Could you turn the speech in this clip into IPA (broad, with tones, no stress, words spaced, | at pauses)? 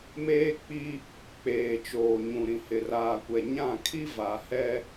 meː˦k͡pi˦ | k͡peː˨t͡ʃoː˨ɲũ˨ ɾĩ˨hɪ˨raː˨kʷɛ˨ ɲã˦˨ kʰi˦va˨hɛ˦